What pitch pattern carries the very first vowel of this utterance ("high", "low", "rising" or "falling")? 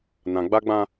low